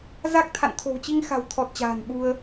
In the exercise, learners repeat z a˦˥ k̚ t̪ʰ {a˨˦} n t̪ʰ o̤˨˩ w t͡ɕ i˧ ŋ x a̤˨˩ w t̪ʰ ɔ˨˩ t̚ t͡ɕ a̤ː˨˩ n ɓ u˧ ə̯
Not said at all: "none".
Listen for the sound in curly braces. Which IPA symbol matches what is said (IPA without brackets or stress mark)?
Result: a̰˧˨